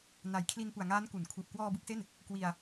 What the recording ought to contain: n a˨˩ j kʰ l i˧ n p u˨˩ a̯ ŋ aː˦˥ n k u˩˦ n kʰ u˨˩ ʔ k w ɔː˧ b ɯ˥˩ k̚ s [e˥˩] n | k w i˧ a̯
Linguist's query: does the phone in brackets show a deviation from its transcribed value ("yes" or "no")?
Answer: no